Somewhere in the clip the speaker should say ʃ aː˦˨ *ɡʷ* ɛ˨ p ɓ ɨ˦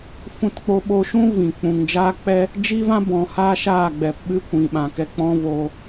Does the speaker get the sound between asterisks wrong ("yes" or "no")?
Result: yes